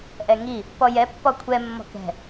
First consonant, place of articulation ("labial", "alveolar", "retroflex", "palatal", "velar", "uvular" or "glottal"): glottal